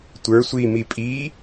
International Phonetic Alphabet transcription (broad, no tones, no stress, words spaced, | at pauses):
tʷə˞ sʷi mipʼi